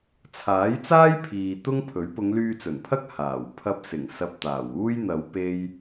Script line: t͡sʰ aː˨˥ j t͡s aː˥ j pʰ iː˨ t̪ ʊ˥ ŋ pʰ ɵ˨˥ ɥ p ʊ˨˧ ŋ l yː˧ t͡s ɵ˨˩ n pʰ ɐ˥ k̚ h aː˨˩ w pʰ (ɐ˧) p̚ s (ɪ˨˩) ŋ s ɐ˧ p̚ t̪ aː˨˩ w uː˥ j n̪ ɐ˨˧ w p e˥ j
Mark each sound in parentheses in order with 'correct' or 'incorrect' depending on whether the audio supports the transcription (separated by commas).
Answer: correct, correct